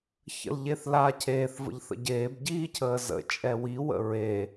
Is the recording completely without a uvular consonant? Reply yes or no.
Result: yes